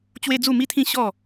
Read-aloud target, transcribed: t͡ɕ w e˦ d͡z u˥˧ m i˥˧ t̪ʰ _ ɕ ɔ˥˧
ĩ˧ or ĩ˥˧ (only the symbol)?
ĩ˥˧